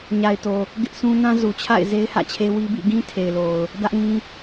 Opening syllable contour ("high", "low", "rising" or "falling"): low